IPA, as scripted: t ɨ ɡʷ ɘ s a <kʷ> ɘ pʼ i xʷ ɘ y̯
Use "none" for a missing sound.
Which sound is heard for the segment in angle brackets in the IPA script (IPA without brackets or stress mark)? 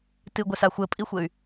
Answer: xʷ